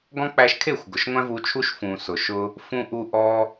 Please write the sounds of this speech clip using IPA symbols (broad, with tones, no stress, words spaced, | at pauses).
ɡɔ̃˦ k͡pæ˧ʃkʰe˦˨xʷ ɡʊ˨ʃŋʷæ̃˦vu˧t͡ʃʰu˦ʃ fũ˨sʊ˨ʃʊ˧ | fũ˧ʔu˧ ʔɔ˧